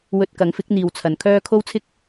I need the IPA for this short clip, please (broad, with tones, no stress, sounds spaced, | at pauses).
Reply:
w ɵ˧ t̚ k ɐ˨˥ ŋ f ɪ˨˥ k̚ n̪ iː˨ w t͡sʰ ɐ˨ n kʰ œː˥ kʰ o˥ w t͡sʰ ɪ˥ k̚